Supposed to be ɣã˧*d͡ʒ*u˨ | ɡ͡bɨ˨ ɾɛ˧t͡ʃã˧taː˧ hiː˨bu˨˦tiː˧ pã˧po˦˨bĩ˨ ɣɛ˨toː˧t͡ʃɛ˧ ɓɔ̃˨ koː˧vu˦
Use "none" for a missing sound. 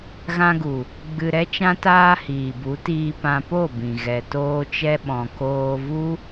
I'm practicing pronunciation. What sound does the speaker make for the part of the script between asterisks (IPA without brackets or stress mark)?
ɡ